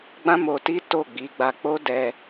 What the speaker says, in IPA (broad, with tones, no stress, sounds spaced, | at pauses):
ɡ͡b ã˦ m o˧ t i˦ t o˦˨ ɡ͡b i˨˦ ɡ͡b a˧ k͡p o˦ d ɛ˧